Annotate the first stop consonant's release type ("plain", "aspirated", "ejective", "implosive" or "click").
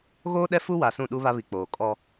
implosive